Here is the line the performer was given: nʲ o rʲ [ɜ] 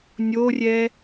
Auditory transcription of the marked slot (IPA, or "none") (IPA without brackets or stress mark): ɛ